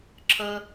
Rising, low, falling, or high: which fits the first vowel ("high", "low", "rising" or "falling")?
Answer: high